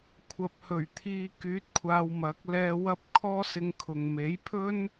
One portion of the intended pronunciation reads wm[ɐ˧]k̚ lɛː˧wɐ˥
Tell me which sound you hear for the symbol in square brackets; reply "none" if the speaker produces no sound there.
ɐ˨˥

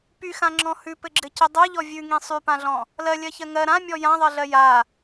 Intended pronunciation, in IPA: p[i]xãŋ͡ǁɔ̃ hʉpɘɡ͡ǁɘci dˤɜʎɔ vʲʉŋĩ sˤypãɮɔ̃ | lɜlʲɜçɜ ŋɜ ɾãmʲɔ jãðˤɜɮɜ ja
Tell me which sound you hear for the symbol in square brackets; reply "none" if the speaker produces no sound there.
y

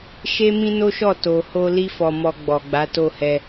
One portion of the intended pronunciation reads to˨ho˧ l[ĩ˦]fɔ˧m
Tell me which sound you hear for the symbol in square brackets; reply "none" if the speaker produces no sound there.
i˦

